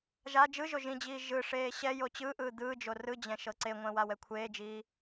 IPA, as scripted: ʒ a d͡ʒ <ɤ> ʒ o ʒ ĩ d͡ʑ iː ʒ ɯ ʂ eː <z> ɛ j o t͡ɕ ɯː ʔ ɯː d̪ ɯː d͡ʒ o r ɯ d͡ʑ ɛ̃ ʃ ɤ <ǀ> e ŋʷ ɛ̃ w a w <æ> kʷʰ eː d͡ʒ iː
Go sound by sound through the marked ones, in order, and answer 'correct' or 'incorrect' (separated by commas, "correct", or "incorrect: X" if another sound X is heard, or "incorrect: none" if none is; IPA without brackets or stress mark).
incorrect: ɯ, incorrect: ɕ, correct, incorrect: ɛ